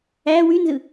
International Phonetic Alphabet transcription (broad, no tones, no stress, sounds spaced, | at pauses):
æ w y n z ɯ